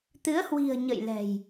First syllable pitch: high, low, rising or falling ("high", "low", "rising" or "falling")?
rising